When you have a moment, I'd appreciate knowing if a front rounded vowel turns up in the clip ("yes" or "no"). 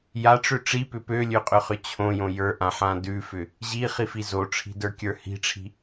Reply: yes